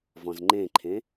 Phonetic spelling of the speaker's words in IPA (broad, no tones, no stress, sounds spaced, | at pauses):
v ɔ̃ z ŋ͡ǃ ẽ ǃʰ ẽ